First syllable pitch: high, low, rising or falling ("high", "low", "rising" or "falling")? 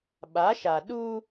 rising